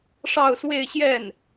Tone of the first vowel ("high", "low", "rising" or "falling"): falling